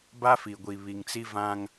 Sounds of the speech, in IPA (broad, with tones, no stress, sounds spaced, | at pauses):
b a˦ f i˨ ɡʷ i˨ β i˨ ŋ t͡s i˦ v ã˦ ŋ